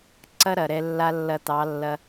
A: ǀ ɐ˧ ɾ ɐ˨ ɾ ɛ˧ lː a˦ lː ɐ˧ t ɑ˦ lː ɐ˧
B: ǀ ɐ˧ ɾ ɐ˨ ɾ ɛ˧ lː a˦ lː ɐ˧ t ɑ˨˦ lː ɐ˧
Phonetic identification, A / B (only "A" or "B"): B